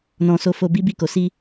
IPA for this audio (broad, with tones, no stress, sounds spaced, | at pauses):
n ɔ̃˧ s o˧ f o˧ b i˦ b i˦˨ k o˨˦ s i˦